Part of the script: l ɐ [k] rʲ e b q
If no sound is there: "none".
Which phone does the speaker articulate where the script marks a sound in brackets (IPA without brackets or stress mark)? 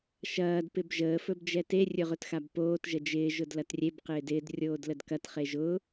t